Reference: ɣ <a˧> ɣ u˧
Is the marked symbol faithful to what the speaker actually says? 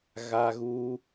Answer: yes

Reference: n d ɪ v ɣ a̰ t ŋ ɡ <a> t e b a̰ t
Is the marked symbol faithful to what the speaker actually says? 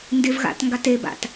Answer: yes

